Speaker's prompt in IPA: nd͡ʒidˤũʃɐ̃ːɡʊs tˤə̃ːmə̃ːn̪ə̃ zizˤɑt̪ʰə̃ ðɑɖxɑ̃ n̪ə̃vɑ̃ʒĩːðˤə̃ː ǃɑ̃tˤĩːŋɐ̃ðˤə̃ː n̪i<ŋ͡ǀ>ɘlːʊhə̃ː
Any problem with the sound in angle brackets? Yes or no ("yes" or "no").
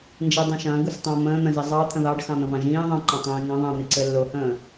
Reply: yes